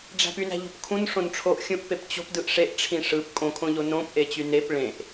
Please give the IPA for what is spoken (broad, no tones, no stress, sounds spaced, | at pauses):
ɖ͡ʐ æ̤ p y n æ̤ ʎ o̤ p kʰ ũ n ʂ õ n ʈ͡ʂʰ o ʔ xʲ ũ ʔ p e p t͡ɕ o̤ p d ɯ ʔ ʂ e ʔ ʈ͡ʂʰ ĩ ʂ ɯ p kʼ õ kʰ õ ʎ o n õ p ʔ e t͡ɕ y n e p ɭ ẽ ʔ